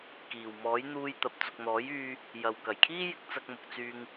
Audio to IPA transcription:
k iː˨˩ w m ɔː˨˥ j n̪ uː˧ j t̪ ɐ˨ p̚ t͡s ʊ˨ k̚ n̪ ɔː˨˥ j yː˧ | j ɐ˨ w k ɐ˨˩ j kʰ iː˥ j ɪ˨˥ k̚ t͡s ɐ˧ k̚ m ʊ˨ k̚ t͡s yː˧ ŋ

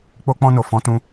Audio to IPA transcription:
k͡p o˧ k͡p ɔ̃˧ n o˨ f ɔ̃˨˦ t ũ˧

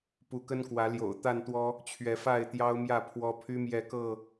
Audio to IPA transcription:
p u˨˦ k ə˦ n k w ä˨˦ l j o̰˨˩ ʊ̯ t̪ a˥˨ n t̪ w ɔ˦ | t͡ɕʰ ɥ ɛ˨˦ f a˥˨ ɪ̯ t̪ j ɑ˦ ʊ̯ m j ä˥˨ pʰ w ɔ˦ pʰ y˦ m j ɛ˥˨ k ɤ˥˨

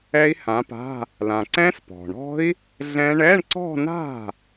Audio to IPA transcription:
ɛ˦˥ i̯ h ã˨˦ p a̤˧˥˧ | l ã˩ ǀ ɛ̃˦˥ s p ɔ̤˩ ɳ ɔ̤˦˥ i̯ | ɮ ɛ̃˦˥ ɳ ɛ˧˥˧ ɳ ǀ ɔ̤˥˧ n a̤˥˩

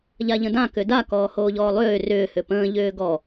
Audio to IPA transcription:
ʎ a ʎ ə̃ d ã k ʏ d a k ɔː h oː ʎ ɔː lˠ ʏː r ʏː h ʏ p ə̃ː ʎ ʏː ɡ ɔ

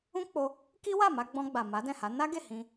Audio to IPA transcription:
ũ˦ k͡p o˧ | k i˦ w a˦˨ m a˧ ɡ͡b ɔ̃˧ ɡ͡b a˨ m a˨˦ d ɛ̃˦˨ h a˨˦ n a˦ ɡ e˦˨ h ĩ˧

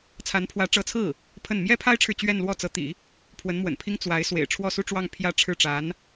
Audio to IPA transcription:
t͡sʰ a˧˥ n pʰ w ä˧˥ ʈ͡ʂ ɤ˧˥ t͡sʰ ɹ̩˥˩ | pʰ ə˥˩ n m j ɛ˥ pʰ a˥ ɪ̯ ʈ͡ʂʰ ɻ̩˨ t͡ɕ ɥ ɛ˥˧ n l w ɔ˥˩ t͡s ɤ˧˥ t̪ ḭ˨˩˦ | pʰ w ə˧˥ n m w ə̰˨˩ n pʰ i˥ ŋ t͡s w a˧˥ ɪ̯ s w ḛ˨˩ ɪ̯ ʈ͡ʂʰ w ɔ˥˧ s u˥˧ ʈ͡ʂ w ɑ˥˧ ŋ pʰ j ä˥˧ ʈ͡ʂʰ ɻ̩˥˩ ʈ͡ʂ a˧˥ n

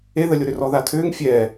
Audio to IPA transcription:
e ð ə lʲ o ɾ ʏ r ɔ ð a tʰ ʏː ŋ fʲ ɛː

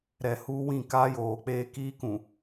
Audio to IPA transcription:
ɾ ɛ˨ h uː˦ w ĩ˦˨ k aː˦ j oː˨ k͡p eː˦ k iː˦ k ũ˨

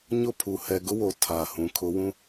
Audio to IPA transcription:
ɲ ʊ˦˨ pʰ u˨ h ɛ˨ ɡ ʊ˦ w o˨ tʰ aː˨ h ũ˨˦ kʰ ʊ˨˦ w ũ˦

